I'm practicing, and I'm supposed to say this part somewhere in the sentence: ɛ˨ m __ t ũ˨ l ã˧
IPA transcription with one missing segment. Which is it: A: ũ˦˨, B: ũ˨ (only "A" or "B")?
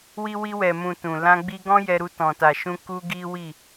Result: B